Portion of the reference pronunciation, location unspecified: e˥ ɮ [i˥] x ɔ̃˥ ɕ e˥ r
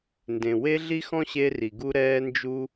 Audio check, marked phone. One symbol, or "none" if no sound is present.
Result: i˥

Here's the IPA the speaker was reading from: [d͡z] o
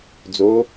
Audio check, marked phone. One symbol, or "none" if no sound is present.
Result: d͡z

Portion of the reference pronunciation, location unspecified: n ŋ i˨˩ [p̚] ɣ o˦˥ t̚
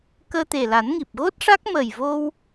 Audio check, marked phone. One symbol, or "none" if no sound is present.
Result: p̚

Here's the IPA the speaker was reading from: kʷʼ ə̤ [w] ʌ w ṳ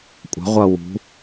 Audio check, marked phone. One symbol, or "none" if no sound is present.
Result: ʁʷ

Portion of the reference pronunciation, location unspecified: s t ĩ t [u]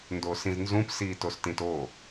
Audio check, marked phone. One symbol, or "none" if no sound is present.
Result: o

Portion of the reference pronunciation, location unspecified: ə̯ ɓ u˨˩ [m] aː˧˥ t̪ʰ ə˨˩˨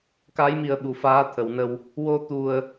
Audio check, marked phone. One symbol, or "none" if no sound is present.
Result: f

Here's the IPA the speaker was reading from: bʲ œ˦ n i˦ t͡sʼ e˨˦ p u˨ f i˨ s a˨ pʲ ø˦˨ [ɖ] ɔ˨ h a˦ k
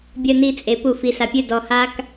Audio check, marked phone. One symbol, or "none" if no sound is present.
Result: d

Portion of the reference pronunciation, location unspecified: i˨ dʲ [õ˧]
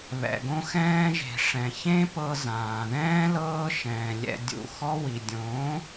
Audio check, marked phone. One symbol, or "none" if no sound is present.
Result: õ˨˦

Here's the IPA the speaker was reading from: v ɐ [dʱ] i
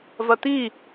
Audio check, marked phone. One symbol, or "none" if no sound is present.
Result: t̪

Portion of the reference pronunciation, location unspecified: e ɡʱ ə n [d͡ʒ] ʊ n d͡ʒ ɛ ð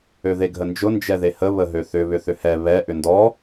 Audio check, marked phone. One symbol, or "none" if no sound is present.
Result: d͡ʒ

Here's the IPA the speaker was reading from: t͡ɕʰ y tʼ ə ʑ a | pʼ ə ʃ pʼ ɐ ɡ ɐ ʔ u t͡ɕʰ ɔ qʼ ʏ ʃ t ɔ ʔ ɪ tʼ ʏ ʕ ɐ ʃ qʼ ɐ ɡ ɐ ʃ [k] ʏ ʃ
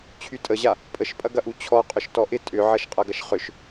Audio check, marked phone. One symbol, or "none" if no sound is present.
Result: χ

